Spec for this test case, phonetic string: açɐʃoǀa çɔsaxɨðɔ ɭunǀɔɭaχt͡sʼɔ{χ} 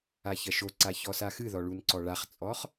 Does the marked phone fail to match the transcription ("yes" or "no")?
no